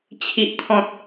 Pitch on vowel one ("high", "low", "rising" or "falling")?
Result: low